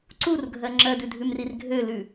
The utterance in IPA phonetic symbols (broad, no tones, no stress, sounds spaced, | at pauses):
ǀ u r ɡʱ ɜ ŋ͡ǁ ɜ d ʉ dʱ ʉ m r i r ɡʱ ø l ʉ